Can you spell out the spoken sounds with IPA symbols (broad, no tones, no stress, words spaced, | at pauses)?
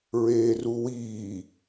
ɹeːruwiː